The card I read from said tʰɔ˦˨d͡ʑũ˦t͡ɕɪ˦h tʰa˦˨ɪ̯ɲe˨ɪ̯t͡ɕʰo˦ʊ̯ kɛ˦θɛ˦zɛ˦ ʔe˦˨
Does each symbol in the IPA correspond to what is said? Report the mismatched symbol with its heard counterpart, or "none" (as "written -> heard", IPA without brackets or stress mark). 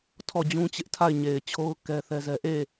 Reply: h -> ʔ